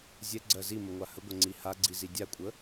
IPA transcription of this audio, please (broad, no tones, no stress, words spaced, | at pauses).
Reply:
zʲɛɡ͡ǀɜ ziməŋʷa həɡʷəŋ͡ǀi haɡ͡ǀizi dʲakʷʼə